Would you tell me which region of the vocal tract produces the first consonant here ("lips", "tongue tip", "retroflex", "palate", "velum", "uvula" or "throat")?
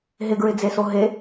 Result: throat